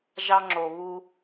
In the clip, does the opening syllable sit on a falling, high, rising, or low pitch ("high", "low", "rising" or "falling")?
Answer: high